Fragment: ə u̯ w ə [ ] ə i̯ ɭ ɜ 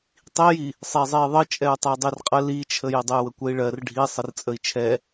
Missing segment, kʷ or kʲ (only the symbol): kʷ